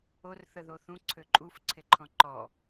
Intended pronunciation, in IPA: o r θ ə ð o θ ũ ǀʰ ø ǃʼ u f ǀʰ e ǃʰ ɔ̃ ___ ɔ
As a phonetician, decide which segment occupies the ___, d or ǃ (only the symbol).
ǃ